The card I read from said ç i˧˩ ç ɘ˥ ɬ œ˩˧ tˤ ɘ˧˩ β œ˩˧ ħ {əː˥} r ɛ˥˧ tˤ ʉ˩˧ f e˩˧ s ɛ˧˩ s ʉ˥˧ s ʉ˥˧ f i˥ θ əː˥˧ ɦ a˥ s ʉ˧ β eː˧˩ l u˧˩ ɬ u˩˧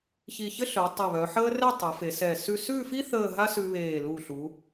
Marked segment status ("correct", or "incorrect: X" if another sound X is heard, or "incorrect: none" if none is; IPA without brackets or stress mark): correct